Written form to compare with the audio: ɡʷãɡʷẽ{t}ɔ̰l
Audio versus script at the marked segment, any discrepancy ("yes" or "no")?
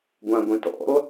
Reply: no